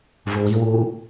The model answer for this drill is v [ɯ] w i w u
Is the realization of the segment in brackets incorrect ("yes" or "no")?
yes